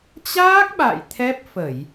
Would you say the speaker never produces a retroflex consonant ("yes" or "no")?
yes